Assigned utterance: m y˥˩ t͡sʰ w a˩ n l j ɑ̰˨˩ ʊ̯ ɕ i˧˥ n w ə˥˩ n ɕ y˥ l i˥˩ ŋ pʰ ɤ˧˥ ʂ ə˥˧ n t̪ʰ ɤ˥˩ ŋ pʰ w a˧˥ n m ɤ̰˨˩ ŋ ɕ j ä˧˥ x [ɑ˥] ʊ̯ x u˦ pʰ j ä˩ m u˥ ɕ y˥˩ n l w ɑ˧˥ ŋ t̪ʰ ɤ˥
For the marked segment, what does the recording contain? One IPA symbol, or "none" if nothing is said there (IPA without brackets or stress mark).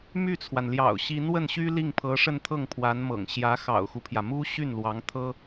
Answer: ɑ̰˨˩